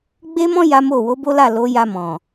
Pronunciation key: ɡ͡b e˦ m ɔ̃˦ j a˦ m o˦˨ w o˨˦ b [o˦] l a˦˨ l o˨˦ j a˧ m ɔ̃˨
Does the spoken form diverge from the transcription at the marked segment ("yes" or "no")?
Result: no